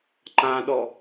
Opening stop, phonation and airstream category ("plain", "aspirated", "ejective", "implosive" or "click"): click